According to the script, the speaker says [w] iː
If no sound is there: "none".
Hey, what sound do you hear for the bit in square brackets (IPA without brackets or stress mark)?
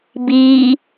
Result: b